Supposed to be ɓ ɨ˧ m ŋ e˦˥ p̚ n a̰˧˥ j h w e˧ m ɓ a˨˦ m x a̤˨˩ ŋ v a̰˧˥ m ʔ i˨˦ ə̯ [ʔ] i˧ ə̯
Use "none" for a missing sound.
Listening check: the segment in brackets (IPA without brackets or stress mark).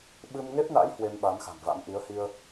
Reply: h